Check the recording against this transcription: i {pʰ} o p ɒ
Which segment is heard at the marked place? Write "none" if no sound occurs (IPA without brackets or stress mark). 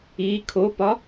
kʰ